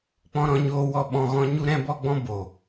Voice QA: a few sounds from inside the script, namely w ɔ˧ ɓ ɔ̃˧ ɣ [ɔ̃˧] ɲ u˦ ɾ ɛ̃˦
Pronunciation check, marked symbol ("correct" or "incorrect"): incorrect